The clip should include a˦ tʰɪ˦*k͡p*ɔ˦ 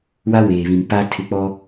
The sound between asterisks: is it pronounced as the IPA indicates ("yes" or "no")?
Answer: yes